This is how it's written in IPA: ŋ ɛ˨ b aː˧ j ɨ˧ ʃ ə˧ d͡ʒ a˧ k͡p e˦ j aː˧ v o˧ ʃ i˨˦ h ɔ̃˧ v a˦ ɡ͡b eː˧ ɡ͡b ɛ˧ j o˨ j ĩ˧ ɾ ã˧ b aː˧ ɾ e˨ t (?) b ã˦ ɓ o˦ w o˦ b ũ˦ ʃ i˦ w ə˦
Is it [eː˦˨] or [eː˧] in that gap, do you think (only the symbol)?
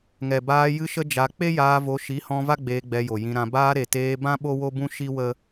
eː˧